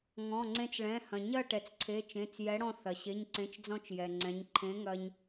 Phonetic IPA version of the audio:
ŋ ɔ̃˩˧˩ ŋ͡ǀ ẽ˧ t͡s ɭ ɛ̃˩˧˩ h ɐ̃˩ ɲ ɐ˥˨ ʈ ɛ˩ t͡s ǀʰ e˩˧˩ t͡ʃ ẽ˩˧˩ t͡s j ɛ˨˥ ɽ ɔ̃˧ θ ɐ˩ ɕ e˩˧˩ ɲ ǀ ẽ˩˧˩ t͡ʃ d͡z ɔ̃˧ t͡ʃ j ɛ˩ ŋ͡ǀ ɛ̃˩˧ ɲ ǃʰ ẽ˨˥ ŋ ɐ˧ ɲ

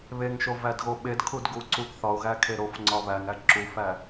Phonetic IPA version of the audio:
β e ŋ ʃ o v æ d ɣ o ɓ e d kʰ u d ɡ u ǀ u ɡ θ ɒ ʊ̯ ɣ æ kʰ e ɾ o f ŋ͡ǀ ɒ β æ ŋ æ ǁ u f æ

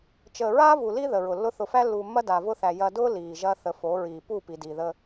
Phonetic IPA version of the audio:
t͡ʃ əː˨ ɹ aː˦ v u˨ l i˦ ð ə˨ ɹ ʊ˨ lː ʊ˦ θ ʊ˨ f æ˦ lː uː˨ mː ɐ˦ d a˨ v ʊ˦ θ æ˨ j ɐ˨ d ʊː˦ l iː˨ ʒ ɐ˦ θ ə˦ f o˨˦ ɹ iː˨ p u˦˨ p i˨ d iː˨ ð ə˦

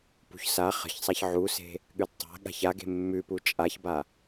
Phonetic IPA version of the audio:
p ṳ ç s a χ ə̤ ç sˤ a ç ʕ u s e̤ | ɠ ʉ d tˤ a̤ ɠ a̤ ç a ɡ e̤ mː ʉ p u t͡ʃʼ a ç b a

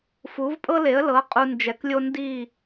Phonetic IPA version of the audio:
f u˩˥ v pʼ ɤ˥ l e˩˥ ə̯ l ɤ˩˥ qʼ u˧ n d͡ʒ ɛ˩˥ k lʲ o˥ n d i˥˩

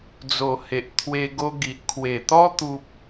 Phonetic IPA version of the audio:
d͡z o˨˩ h e˨ ʔ t̪ʰ w e˧ ɡ o˧ ɡ i˨ ʔ kʰ w e˨˩ t̪ ɔ˦ t̪ u˦ p̚

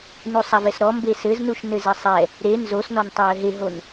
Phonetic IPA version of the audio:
n u sˤ a v ɛ s ɾ ɔ m b e s ɘ z n u ʃ n ɘ z ɘ sˤ ɛ | ɾ e n z o s n ɔ n tˤ ɘ j ɘ ɦ e ɦ o n

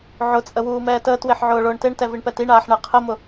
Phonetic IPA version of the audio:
ʕ ʊ t͡sʼ ə w uː m ɛː t əː t w e ħ ʕ ʊː ɭ ʊː ɳ t e ɳ t ɛ v i ɳ p ɛ t i ɳ aː ħ ɳ ɛ qʰ ə m ʊ

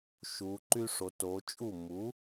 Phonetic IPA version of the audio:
ʃ u˩˧ ǃ y˥ ʂ o˩˧ t o˩˧ t͡ʃʼ u˥˩ m u˩˥

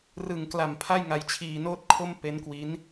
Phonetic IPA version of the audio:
r ɯ˨˩ ŋ k l a˨˩ m pʰ a˥˩ j ŋ a˧ j t͡ɕʰ iː˧ n oː˥˩ t̚ kʰ o˥˩ m p e˦˥ n k w i˦˥ n

